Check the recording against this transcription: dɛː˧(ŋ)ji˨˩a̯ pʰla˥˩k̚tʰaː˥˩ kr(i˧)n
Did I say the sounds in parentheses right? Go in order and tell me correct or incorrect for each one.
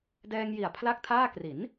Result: correct, incorrect

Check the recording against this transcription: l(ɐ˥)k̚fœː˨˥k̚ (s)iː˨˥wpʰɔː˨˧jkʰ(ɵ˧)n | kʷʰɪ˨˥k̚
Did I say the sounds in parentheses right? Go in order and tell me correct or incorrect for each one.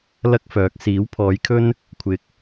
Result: correct, correct, incorrect

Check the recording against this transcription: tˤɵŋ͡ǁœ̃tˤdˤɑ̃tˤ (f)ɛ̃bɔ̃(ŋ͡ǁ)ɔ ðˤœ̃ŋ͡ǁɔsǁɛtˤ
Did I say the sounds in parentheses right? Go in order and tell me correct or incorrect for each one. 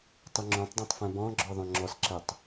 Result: correct, incorrect

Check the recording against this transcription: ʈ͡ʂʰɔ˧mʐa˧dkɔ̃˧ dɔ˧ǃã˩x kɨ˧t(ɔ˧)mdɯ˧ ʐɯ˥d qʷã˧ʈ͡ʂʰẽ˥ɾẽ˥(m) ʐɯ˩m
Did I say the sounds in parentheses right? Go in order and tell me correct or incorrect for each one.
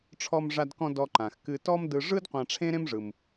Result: incorrect, correct

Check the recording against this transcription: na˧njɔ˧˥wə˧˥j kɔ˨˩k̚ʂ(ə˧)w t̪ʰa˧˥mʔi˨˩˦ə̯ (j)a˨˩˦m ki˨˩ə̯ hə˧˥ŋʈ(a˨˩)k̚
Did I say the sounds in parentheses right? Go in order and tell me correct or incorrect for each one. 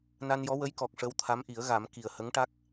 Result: incorrect, incorrect, incorrect

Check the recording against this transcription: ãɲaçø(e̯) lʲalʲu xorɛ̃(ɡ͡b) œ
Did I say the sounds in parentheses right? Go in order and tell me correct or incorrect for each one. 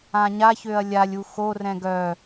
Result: incorrect, incorrect

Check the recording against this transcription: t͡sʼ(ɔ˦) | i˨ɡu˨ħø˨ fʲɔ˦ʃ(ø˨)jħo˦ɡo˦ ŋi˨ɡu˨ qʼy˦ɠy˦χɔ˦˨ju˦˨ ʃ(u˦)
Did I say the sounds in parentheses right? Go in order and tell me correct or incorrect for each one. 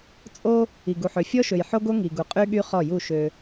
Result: incorrect, correct, incorrect

